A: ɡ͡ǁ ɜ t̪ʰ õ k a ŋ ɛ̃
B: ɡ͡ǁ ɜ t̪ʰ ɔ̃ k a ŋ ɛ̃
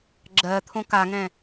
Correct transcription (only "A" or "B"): A